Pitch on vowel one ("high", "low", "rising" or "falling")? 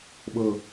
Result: falling